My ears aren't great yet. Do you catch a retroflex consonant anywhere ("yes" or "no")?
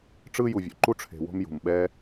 yes